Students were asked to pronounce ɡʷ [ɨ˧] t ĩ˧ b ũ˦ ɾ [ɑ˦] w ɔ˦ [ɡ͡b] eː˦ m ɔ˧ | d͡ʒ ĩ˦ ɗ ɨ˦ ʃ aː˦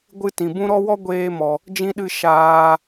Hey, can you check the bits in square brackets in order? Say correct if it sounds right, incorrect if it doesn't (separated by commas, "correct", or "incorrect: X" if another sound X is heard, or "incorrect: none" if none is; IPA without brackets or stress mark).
incorrect: ɨ˦, incorrect: ɔ˦, incorrect: ɡʷ